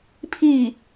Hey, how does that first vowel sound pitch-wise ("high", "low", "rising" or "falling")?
falling